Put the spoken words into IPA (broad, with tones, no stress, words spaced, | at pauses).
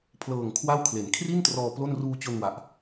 pʰlɤː˨˩ŋ kʰwa˥˩w kʰle˩˦nkʰri˥˩ntrɔː˧ plo˥˩n ruː˧t͡ɕo˧nwa˨˩ʔ